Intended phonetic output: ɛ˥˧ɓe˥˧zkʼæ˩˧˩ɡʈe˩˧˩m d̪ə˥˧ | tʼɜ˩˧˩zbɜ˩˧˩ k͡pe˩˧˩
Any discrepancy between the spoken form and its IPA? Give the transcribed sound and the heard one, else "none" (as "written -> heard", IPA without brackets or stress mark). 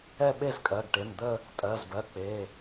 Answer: æ˩˧˩ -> ɜ˩˧˩